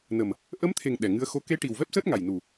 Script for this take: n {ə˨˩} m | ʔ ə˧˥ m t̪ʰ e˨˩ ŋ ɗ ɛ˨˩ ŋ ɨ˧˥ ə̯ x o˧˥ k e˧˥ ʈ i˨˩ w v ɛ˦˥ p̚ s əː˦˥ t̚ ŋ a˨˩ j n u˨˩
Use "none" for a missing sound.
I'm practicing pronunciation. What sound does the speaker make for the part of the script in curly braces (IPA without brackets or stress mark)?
ə˨˩